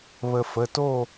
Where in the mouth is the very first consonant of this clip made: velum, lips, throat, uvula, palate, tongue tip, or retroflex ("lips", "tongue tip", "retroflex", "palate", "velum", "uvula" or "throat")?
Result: lips